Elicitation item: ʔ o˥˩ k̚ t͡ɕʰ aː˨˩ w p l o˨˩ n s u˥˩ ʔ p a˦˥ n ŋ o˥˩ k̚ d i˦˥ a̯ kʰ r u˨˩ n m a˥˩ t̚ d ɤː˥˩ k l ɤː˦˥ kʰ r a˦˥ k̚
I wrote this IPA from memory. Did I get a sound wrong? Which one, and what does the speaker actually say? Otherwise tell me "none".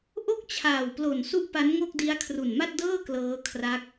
none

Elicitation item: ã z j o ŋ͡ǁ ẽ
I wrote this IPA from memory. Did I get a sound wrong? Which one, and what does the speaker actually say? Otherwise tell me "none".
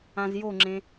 none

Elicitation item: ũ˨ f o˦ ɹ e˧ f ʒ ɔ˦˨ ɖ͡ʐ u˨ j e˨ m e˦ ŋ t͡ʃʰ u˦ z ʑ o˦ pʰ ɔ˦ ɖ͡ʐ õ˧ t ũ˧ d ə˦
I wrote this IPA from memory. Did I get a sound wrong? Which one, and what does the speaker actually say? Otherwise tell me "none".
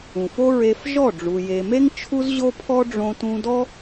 ə˦ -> ɔ˦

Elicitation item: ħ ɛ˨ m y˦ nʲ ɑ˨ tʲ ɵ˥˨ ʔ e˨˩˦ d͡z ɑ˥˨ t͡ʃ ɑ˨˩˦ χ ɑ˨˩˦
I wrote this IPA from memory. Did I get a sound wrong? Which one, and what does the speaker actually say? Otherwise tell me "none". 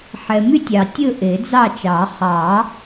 nʲ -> tʲ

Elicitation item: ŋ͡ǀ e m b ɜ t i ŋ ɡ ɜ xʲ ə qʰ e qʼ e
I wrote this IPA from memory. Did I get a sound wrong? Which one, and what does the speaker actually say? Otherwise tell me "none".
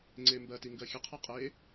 none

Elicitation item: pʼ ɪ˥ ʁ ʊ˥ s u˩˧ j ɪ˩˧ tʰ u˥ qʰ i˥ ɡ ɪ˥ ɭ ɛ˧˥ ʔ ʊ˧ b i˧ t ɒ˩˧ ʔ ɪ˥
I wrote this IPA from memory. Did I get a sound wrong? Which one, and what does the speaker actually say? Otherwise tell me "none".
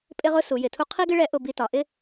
none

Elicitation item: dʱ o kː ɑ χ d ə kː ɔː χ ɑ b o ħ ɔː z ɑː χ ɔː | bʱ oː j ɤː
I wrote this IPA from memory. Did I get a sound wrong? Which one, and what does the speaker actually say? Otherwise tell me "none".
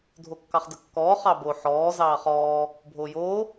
ɤː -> oː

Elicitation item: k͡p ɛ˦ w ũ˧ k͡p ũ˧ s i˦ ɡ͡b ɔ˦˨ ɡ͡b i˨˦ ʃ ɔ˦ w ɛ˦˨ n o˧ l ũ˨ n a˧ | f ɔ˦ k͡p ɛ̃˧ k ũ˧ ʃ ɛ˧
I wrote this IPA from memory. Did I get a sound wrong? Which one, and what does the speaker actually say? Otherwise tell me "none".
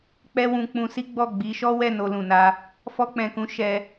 none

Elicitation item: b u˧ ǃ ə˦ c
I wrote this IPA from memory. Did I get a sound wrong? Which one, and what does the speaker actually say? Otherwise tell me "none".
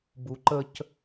none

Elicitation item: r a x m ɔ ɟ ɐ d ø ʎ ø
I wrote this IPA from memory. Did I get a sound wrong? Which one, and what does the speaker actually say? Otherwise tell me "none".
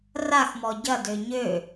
ʎ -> ɲ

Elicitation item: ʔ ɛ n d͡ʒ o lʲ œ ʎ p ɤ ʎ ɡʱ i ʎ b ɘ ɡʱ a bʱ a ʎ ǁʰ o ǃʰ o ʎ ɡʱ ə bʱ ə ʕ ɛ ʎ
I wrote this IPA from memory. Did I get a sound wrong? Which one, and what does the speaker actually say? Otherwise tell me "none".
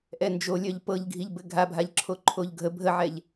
none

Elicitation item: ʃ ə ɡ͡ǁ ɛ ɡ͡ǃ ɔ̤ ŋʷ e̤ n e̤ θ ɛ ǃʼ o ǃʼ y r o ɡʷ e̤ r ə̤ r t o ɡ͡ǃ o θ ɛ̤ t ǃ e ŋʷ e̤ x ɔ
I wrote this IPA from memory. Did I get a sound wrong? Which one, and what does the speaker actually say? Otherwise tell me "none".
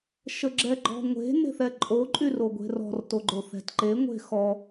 ə̤ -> ɔ̤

